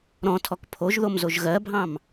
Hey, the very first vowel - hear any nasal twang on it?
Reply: yes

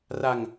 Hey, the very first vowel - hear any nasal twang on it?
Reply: no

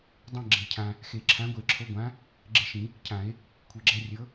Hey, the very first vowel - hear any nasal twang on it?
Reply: yes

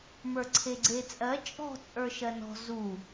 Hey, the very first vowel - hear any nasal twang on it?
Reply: no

